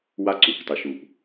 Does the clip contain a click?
yes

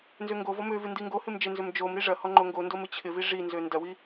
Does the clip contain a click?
yes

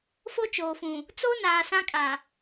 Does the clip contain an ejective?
yes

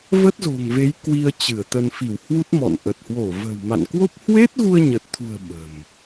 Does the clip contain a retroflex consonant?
no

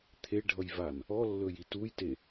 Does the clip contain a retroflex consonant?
yes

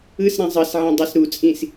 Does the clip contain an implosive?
no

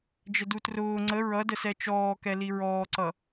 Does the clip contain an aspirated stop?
no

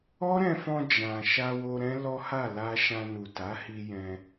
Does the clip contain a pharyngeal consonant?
no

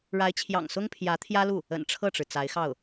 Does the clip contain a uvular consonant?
no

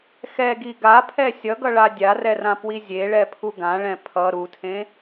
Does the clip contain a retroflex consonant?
yes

